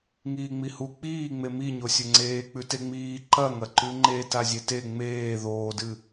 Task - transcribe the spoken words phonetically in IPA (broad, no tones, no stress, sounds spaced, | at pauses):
ŋ iː ŋ͡m i h u k͡p iː ŋ͡m e m i ɲ o sʲ ɵ ŋ͡ǀ eː k͡p ʉ t e ŋ͡m iː ǃ ɐ ŋ ɐ ǃ ʉ ŋ͡ǃ e t a zʲ e t e ŋ͡m eː ð oː d ɨ